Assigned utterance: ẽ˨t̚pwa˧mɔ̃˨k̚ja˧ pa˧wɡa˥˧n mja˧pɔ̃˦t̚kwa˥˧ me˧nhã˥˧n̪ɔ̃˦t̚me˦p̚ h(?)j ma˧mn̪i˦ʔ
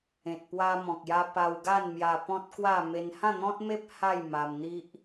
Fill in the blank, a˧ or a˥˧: a˥˧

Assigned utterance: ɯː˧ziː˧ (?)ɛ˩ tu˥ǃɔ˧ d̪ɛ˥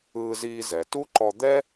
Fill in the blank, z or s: z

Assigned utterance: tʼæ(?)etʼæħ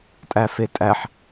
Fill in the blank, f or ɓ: f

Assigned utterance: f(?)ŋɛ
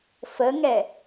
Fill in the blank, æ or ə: ə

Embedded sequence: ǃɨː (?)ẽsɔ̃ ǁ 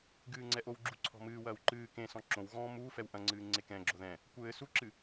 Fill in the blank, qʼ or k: k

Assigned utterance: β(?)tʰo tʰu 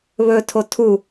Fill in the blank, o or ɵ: ɵ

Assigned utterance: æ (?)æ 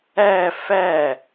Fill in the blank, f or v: f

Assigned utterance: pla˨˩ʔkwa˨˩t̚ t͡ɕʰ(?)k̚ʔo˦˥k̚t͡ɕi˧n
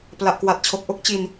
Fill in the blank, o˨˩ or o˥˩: o˨˩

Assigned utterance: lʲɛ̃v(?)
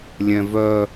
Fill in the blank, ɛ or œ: œ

